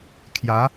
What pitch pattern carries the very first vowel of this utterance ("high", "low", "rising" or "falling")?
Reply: rising